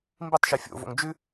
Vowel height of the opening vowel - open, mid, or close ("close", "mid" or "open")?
close